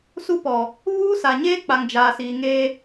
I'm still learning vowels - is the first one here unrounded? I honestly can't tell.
no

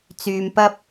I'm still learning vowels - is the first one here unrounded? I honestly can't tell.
no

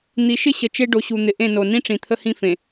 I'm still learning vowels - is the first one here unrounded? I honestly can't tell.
yes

